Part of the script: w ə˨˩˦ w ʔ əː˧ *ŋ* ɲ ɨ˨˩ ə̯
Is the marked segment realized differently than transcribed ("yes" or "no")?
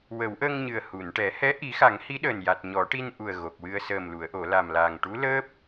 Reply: no